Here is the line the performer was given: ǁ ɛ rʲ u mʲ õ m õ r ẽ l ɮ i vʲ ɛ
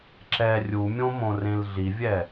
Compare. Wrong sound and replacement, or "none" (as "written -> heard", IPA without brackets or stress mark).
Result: none